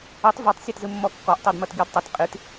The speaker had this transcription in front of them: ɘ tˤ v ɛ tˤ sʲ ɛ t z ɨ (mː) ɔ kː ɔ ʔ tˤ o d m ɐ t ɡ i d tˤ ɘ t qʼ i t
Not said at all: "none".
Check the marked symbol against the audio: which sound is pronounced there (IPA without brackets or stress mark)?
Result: mː